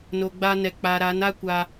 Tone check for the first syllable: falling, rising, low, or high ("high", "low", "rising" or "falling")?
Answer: low